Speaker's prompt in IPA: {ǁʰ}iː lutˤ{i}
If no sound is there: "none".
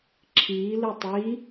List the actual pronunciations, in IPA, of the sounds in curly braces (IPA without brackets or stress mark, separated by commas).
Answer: ǁʰ, i